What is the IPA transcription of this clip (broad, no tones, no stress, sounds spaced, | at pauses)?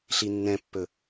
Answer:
ɬ i nː ɛ̃ pː ɵ